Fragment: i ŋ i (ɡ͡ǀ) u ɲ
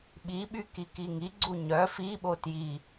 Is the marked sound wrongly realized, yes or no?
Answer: no